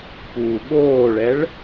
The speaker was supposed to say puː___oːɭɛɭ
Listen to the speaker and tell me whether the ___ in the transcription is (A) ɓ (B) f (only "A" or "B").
A